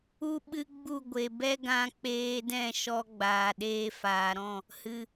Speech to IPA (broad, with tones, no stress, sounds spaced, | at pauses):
u˦ ɓ ɨ˦ ɡ͡b u˦˨ ɡʷ e˨ b ɛ˦ ɡ ã˧ k͡p eː˧ d ɛ̃˦˨ ʃ ɔ˧ ɡ͡b aː˨ ɗ eː˧ f aː˨ ɾ ɔ̃˦˨ | h ɨ˨